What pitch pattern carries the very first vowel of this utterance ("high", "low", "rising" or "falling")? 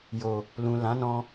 low